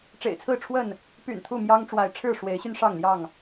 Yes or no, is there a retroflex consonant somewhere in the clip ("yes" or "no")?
yes